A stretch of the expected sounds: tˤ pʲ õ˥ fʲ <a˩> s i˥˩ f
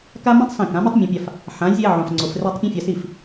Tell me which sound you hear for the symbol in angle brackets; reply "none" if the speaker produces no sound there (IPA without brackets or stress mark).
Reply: a˧